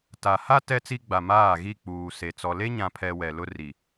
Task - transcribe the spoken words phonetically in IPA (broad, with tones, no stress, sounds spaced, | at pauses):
t a˨ h a˦ t ɛ˦ t͡s i˦ ɡ͡b a˨ m aː˦˨ ɣ i˦˨ k͡p uː˨ s e˨ t͡s ɔ˨ l e˦ ɲ ã˨ pʰ ɛ˨ w ɛ˨ l ʊ˦ r i˨